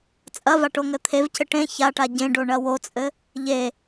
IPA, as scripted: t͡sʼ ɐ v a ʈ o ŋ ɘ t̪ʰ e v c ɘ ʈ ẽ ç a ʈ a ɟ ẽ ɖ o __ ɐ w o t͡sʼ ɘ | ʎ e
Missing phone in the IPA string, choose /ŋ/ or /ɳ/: ɳ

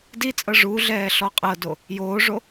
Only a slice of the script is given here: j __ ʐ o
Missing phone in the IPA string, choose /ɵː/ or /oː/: oː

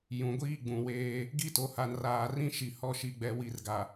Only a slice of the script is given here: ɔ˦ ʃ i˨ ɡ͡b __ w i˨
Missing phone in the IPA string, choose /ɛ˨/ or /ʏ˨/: ɛ˨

